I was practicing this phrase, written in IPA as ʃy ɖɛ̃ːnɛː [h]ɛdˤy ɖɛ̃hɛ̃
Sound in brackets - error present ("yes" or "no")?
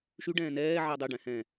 yes